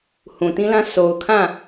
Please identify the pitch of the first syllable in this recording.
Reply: low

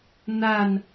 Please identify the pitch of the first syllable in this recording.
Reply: falling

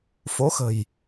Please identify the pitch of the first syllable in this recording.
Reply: rising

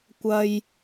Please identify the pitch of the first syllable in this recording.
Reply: high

